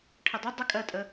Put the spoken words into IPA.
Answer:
ʈʰ ə dˤ ə dˤ ɪ kʼ ɜ tʼ ə

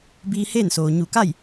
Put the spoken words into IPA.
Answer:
b iː˧ h eː˥˨ n s oː˩ ɲ u˧˩ k a˥˨ j

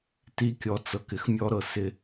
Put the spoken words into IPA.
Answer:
t i˦ kʲ ɔ˨ t͡s ɤ˨ k ɪ˨ x mʲ ɔ˦ ɾ ɤ˨ s ɪ˦

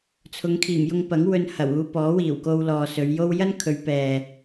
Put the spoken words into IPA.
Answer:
t͡sʰ ʊ˨˧ ŋ kʰ iː˨˩ m j ʊ˧ ŋ p ɐ˨˥ ŋ w ɵ˧ n h ɐ˨˩ w uː˧ p ɔː˨˥ w iː˨˩ w k o˧ w l ɔː˨ s ɵ˨˧ ɥ j o˥ w j ɐ˥ n kʰ ɵ˨˧ ɥ p ɛː˨

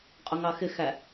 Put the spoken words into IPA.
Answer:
qʼ ʊ ŋ ɑ x ɪ x æ

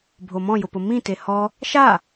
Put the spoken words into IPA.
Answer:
bʱ o m ɔ̃ j ʊ p ʊ m ĩ t e h ɔ | ʃ a

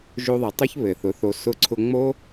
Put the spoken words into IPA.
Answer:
ʒ o˧ ðˤ e˨ tˤ o˦ ç β ɘ˨ θ ʊ˨˦ θ o˧ s ʊ˧ ǀʰ ʊ˧ ŋ͡m o˦

